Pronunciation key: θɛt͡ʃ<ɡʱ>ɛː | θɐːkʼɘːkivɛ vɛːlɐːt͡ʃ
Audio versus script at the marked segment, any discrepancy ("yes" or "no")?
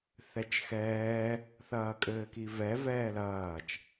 yes